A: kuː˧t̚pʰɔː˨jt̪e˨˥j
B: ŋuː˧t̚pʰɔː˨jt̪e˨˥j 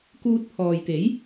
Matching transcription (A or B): A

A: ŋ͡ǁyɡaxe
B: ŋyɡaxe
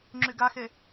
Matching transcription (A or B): A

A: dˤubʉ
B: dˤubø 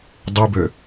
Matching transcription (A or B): B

